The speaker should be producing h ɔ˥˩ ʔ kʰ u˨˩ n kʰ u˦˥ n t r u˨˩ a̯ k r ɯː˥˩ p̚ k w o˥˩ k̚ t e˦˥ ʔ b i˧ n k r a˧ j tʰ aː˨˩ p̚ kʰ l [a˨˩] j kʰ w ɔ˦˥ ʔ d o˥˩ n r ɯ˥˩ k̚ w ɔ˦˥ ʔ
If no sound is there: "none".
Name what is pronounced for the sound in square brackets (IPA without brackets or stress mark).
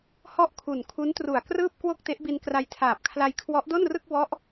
a˧